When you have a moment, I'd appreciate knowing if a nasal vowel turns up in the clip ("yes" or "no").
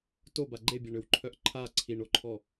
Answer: no